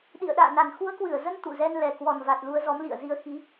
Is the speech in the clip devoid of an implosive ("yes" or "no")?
no